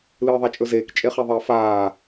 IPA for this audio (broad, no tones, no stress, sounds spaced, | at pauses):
l ɨː ðˤ a t͡ʃʼ ɵ z eː k t͡ʃʼ e χ e ðˤ ɐː f aː